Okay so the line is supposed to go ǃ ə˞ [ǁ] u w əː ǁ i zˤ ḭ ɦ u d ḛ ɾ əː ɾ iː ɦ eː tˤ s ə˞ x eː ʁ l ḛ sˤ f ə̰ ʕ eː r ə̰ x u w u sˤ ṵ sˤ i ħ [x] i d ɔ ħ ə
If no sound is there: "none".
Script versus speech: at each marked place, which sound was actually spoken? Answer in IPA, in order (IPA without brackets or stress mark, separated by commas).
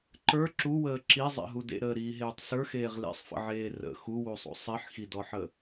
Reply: ǁ, x